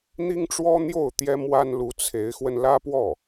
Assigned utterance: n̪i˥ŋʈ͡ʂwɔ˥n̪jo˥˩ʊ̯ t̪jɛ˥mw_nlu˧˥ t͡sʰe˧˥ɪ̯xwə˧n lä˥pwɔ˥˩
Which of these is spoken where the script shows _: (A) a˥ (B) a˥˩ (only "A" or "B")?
A